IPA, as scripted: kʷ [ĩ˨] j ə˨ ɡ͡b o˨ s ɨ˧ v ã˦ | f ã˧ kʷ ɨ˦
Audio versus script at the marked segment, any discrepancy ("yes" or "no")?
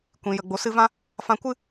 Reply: no